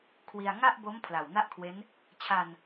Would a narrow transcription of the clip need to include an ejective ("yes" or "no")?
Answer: no